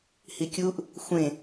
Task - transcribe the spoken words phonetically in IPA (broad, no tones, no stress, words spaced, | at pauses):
hikʲuʔ | xʷẽ